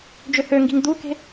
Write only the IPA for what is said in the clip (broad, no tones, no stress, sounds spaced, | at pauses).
d͡ʒ ø h ø ŋ ɡ i̤ ŋ d̪ u k e̤